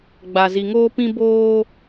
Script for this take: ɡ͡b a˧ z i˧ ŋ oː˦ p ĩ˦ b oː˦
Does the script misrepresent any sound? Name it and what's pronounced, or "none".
none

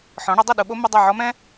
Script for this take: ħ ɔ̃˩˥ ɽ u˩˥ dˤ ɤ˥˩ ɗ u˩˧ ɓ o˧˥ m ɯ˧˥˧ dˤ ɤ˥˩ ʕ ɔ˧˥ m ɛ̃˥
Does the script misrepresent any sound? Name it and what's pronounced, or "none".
none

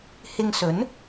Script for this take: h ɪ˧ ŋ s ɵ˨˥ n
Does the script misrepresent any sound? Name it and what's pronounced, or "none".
none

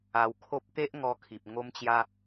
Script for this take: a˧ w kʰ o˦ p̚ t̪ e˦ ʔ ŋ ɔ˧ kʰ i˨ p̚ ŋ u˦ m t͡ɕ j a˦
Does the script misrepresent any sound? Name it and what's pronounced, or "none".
u˦ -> o˦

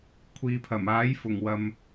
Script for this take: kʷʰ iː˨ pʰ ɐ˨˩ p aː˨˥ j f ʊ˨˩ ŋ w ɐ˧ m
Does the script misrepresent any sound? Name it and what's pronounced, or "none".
p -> m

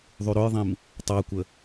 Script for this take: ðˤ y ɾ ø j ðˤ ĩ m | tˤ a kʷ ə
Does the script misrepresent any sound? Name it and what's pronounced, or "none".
none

